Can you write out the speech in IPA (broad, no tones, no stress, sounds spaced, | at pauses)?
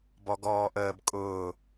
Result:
b ɔ ɡ ɔː ʔ əː b kʼ ʊː